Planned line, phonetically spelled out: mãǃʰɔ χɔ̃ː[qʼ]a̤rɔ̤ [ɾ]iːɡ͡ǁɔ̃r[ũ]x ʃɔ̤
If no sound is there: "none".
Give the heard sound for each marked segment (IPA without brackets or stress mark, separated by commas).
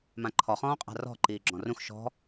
qʼ, ǃ, ũ